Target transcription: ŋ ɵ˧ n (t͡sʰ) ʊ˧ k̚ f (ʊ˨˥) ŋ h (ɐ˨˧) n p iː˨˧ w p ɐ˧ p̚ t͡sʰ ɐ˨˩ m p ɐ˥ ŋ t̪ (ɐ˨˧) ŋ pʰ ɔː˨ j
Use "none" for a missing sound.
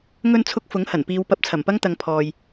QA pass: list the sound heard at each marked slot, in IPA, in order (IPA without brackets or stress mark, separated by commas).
t͡sʰ, ʊ˨˥, ɐ˨˩, ɐ˨˧